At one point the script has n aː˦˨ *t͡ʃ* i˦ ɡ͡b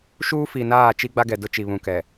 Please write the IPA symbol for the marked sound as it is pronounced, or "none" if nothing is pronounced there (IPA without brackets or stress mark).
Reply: t͡ʃ